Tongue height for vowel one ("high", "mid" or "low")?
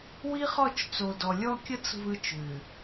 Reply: high